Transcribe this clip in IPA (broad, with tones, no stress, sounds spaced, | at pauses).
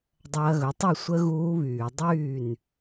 dˤ ɐː˧ ɣ ɵ˩˥ tˤ u˥˩ sʷ ə˦˥ ɣ uː˦˥ β yː˧˩˧ dˤ yː˥˩ n